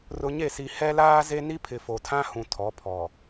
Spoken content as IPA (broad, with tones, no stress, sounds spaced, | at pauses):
r ʊ˨ ɲ e˦˨ s i˨ h ɛ˦ l aː˦ z e˦ n i˦ pʰ ɪ˨ f o˨ tʰ ã˦ h ũ˨ tʰ ɔ˨˦ pʰ ɔ˨